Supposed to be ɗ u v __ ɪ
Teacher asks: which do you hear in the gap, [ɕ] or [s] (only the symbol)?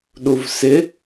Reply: s